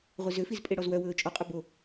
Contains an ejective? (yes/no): yes